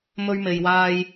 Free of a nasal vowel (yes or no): yes